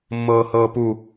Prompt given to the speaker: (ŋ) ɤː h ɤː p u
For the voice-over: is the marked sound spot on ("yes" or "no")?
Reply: no